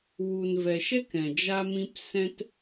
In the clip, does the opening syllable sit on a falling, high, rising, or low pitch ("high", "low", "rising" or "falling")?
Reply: low